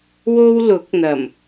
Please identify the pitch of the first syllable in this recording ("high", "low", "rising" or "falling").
high